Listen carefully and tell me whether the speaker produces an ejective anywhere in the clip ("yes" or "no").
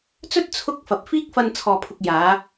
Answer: no